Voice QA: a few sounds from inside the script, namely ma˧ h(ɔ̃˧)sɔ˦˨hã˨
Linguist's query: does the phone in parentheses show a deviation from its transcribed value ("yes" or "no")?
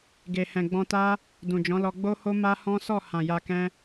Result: yes